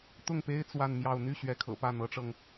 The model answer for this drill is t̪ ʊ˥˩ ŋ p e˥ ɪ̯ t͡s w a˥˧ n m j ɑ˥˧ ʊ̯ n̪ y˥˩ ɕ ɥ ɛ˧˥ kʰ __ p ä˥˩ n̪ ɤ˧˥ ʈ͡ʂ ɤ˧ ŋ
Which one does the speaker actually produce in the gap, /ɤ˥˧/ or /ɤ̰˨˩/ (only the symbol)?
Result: ɤ̰˨˩